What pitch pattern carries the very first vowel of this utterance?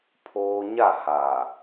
high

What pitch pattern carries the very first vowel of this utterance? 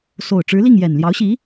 low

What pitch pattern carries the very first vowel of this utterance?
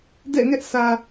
falling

